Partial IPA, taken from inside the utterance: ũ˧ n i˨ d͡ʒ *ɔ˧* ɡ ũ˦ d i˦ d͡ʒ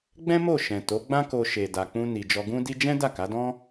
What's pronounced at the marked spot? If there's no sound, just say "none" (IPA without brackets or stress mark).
ɔ˧